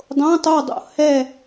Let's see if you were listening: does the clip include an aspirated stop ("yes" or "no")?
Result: no